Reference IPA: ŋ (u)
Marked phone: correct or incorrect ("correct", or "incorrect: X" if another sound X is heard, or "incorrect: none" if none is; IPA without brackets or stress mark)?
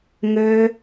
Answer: incorrect: ø